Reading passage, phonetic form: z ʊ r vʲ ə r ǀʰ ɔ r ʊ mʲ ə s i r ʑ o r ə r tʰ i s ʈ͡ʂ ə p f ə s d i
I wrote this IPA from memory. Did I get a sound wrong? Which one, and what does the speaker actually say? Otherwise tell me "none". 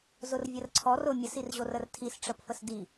none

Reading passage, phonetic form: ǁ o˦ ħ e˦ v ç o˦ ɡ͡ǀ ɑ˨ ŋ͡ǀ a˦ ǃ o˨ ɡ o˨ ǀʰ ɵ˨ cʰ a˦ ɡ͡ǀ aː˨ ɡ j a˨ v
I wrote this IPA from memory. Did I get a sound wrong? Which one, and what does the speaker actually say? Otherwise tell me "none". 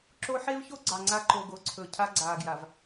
none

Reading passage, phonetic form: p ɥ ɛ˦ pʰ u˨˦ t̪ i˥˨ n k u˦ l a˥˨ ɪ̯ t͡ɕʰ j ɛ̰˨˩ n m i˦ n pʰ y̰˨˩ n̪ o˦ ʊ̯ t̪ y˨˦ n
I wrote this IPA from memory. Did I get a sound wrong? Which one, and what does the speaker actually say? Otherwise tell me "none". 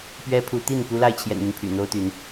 none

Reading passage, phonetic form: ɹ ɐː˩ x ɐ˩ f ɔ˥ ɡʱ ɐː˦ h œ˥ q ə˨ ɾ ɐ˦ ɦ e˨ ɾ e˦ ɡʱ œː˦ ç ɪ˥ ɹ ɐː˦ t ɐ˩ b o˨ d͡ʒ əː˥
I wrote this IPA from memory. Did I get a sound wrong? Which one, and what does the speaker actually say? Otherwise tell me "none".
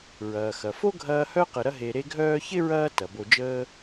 ɔ˥ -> o˥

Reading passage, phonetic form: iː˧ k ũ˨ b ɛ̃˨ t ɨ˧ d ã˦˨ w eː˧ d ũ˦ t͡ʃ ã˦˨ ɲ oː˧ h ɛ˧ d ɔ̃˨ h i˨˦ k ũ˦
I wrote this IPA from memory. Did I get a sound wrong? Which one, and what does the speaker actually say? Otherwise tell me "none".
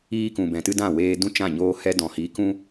none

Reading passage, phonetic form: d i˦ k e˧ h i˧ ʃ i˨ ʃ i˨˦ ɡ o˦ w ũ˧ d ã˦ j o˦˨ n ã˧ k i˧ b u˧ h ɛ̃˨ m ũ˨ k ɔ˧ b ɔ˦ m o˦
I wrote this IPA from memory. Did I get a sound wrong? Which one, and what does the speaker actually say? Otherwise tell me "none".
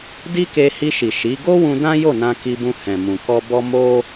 u˧ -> ũ˧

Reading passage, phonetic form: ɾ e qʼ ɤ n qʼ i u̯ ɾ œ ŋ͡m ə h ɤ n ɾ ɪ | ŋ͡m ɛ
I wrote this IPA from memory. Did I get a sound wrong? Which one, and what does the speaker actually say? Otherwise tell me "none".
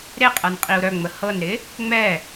none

